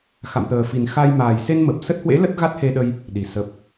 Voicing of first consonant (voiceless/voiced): voiceless